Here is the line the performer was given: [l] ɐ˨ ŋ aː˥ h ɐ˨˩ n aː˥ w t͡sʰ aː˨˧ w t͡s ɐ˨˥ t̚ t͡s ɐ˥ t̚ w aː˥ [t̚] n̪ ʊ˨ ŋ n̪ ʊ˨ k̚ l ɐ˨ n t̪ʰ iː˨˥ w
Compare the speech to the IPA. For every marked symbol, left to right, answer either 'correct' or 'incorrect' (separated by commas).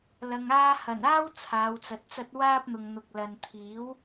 correct, incorrect